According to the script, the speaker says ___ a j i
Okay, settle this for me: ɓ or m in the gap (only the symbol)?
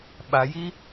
ɓ